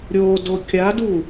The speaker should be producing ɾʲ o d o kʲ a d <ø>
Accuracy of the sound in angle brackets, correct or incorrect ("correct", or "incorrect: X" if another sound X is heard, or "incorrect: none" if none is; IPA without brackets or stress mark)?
incorrect: u